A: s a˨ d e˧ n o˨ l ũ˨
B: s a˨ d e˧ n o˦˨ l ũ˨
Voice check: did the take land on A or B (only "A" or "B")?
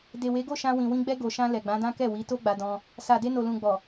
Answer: A